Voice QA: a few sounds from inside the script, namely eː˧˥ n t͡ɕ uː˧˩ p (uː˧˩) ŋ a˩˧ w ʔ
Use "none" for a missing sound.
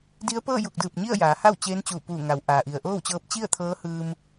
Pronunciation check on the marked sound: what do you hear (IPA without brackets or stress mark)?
uː˧˩